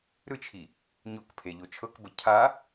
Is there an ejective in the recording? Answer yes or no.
no